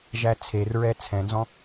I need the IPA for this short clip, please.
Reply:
ʒ æ t͡sʰ e r ɹ ɛ t͡sʰ ɛ̃ n z ɔ̃

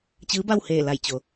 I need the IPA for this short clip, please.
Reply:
t͡ɕ ɯː˧˥ b a˥˨ w h eː˧˩ l a˧˩ j t͡ɕ o˩

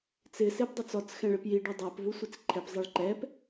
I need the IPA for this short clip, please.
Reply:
t͡s ɪ s e b dˤ o t͡s ɔ t͡s x ɛ̃ ɭ e p j i ɖ o dˤ ɛ p v u sʷ i t͡s ǃʰ ɛ p zˤ ɛ ɭ ǃ ɛ p

